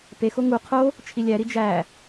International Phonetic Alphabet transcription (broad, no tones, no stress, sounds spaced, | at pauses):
p e x o ŋ u qʰ o | t͡ʃʰ i lʲ æ ɾ i d͡ʒ æ